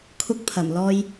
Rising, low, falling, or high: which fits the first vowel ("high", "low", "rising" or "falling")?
high